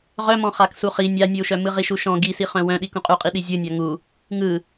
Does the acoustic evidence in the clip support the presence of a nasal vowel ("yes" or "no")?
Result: yes